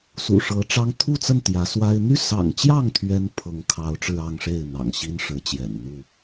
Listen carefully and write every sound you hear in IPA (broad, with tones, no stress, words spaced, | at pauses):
sṵ˨˩ʂɤ˨˦ʈ͡ʂɑ˦ŋ t̪ʰu˥˨t͡sə˥˨n t̪jä˨˦ swa˦ɪ̯ n̪y˥˨sɑ̰˨˩ŋt͡ɕjɑ˥˨ŋ t̪ʰɥɛ˦n pʰɤ˨˦ŋkʰɑ˨˦ʊ̯ʈ͡ʂɻ̩˧ ɑ˥˨ŋʂe˥˨ɪ̯ n̪ɑ̰˨˩ŋɕi˦nʂɻ̩˨˦t͡ɕjɛ̰˨˩n n̪u˥˨